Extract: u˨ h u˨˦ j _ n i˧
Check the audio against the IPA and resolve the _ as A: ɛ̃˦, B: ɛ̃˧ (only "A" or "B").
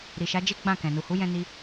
B